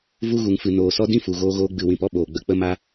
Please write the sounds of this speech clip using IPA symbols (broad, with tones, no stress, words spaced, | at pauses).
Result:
vu˧ɣu˨ŋfɨ˨ noː˨sɔ˧ dĩ˦fu˨ɣoː˧ɣoː˧ ɡ͡bɨ˨wĩ˨p ɔ˦ɓoː˨ ɡ͡bə˨k͡pə˧ma˧